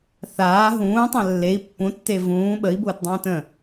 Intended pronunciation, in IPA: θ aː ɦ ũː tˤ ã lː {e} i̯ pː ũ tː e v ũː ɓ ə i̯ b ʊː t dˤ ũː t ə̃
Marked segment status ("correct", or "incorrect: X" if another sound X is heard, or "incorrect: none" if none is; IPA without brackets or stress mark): correct